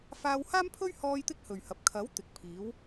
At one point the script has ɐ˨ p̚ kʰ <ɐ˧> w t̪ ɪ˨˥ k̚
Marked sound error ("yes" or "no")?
yes